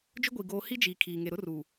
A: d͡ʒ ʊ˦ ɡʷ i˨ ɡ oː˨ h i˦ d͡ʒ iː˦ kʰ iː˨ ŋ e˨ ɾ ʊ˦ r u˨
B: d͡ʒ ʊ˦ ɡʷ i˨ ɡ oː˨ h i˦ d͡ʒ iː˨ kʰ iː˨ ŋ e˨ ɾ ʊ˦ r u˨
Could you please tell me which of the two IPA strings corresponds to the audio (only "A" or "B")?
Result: B